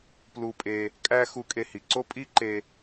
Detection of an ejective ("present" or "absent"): present